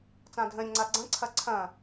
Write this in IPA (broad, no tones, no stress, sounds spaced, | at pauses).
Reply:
t͡s ã dʱ ə̃ ɾʲ ə̃ ŋ͡ǀ a ɡ͡ǀ ɐ̃ ǀʰ ɐ ǀʰ ɐ̃